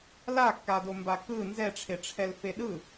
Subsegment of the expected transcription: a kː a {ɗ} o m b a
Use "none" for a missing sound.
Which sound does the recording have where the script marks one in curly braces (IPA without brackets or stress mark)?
d